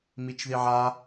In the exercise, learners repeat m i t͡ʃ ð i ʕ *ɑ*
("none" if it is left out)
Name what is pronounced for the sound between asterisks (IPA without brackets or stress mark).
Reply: a